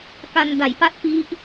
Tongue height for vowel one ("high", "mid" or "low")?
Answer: low